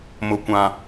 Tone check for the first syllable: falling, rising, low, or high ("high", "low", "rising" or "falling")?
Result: low